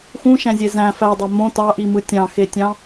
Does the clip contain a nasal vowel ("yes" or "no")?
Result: yes